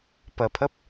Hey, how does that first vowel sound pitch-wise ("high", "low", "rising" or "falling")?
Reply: low